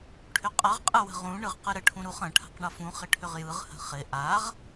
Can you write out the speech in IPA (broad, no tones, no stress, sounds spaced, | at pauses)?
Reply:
ʈʰ ʏ qʼ ʌ ʁ qʼ ɯ w ə̤ ʁ ũ ɳ ɯ ʁ q ɯ ɾ ə ʈʰ ũ ɾ u χ ə̃ ʈʰ a̤ q ɳ ʌ f ũ χ ɪ ʈʰ ʏ ʁ j ɯ ʁ h ə̤ χ ɪ ʔ a ʁ